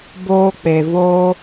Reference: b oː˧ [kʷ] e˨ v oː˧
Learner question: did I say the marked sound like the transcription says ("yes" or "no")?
no